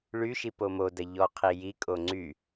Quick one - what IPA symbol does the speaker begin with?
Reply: ɭ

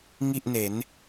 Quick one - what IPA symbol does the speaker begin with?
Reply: ŋ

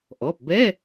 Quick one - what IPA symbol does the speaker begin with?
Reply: ʔ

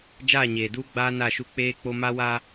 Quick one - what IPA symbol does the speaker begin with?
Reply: d͡ʒ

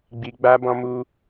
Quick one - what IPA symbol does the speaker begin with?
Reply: ɡ͡b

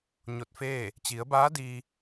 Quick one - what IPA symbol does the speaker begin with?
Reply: ɲ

